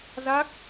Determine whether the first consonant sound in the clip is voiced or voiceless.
voiced